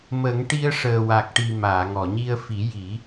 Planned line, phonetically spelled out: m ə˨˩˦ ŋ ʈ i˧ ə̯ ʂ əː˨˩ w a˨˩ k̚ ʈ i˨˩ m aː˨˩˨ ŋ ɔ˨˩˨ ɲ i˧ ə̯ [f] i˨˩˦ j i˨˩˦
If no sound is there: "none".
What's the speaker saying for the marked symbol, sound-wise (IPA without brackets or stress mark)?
f